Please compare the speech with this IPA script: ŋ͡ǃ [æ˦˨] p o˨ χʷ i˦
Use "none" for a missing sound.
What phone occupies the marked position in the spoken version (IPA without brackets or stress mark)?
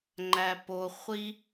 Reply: æ˨